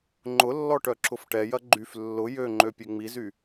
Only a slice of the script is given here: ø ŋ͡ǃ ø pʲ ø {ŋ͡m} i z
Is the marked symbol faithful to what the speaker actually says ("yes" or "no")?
yes